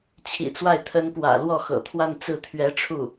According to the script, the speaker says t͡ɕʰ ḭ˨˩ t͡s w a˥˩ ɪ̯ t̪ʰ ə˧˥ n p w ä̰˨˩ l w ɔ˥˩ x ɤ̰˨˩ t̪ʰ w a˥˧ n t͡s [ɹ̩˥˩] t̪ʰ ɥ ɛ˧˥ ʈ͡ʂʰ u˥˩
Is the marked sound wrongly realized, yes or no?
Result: no